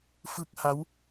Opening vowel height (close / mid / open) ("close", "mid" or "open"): close